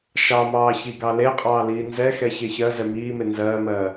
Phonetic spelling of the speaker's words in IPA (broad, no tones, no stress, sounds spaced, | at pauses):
ʃ ɑ m ɑː ç i ɡ ɑ l e qʼ ɑː l iː n z ɛ x ɛ ç e ç ɜ z ɛ m iː m e n z ɜː m ɜː